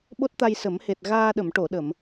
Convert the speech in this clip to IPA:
ɓ o˦˥ t̚ t̪ a˧ j s ə˨˩˦ m h e˨˩ t̚ ɣ aː˧ ɗ ə˨˩˨ m ʈ o˨˩˨ ɗ ə˨˩˨ m

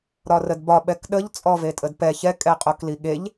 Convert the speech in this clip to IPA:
ɾ ɒ r ə d b ɒ ɓ ɛ k ɗ ə ʎ t͡sʼ ɔ v e tʼ ə d p ɛ ç ɛ kʼ ɛ qʼ o k l i ɠ e ʎ

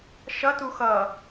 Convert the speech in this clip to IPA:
ʃ ʌ t u x ʌ

